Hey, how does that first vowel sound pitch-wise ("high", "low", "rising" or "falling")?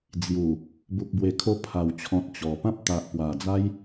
low